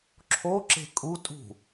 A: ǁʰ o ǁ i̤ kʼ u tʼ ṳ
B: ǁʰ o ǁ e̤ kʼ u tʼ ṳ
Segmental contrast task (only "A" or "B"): B